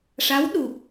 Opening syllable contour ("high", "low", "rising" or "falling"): rising